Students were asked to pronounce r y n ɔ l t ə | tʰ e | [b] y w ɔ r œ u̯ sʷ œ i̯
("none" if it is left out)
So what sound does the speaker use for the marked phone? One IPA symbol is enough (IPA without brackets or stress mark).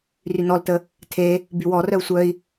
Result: b